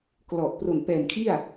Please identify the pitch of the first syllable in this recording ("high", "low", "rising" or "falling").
low